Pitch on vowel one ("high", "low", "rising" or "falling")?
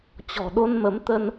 low